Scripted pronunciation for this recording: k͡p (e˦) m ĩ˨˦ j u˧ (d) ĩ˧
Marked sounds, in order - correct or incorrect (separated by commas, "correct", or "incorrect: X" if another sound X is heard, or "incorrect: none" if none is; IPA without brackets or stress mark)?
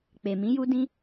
incorrect: e˨, correct